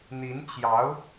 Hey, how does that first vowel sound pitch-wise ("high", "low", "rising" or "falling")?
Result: rising